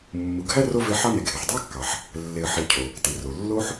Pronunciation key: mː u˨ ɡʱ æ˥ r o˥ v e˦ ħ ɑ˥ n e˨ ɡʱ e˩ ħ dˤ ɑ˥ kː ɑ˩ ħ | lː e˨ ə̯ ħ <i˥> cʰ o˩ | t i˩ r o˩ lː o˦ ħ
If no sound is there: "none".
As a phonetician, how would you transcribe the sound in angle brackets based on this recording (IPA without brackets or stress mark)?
i˨